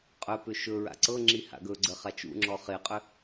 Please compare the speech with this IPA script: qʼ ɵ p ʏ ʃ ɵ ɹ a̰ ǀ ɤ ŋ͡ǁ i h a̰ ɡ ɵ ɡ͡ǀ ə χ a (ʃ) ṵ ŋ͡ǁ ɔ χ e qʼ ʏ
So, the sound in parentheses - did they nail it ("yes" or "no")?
no